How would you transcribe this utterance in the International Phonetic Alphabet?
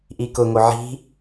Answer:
ʔikʊŋo ʕi̤

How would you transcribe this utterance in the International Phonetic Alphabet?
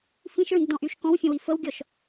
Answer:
fĩʃɹĩɡdɔ̃ʔyʃ kɔ̃wfʲə̃wi fəwɡʲɔʃ

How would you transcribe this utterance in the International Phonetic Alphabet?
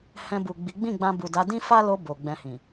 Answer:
hɛ̃˧bu˨ ɡ͡bi˨˦ ɡ͡bĩ˦˨ɡ͡bã˧bu˨da˨˦ dĩ˦fa˦lo˧ bo˨ɡ͡bɛ̃˧hĩ˨

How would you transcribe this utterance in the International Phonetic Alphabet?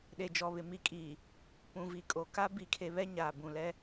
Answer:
ɗe˨d͡ʒɔ˨βɪ˨ mi˨kʼiː˨ | pũ˨vi˨kʼo˨ ka˦ bi˦˨kʰe˦ βɛ˦ɲaː˨ bũ˨lɛ˦

